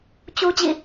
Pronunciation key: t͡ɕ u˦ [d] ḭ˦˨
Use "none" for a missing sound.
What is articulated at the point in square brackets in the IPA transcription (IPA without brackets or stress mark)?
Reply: d͡ʑ